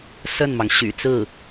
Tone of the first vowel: falling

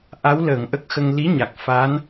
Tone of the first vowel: rising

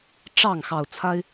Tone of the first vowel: falling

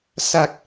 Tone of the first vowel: low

